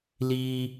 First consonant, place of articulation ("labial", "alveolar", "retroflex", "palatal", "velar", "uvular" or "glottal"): alveolar